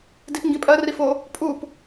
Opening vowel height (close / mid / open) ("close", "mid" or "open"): close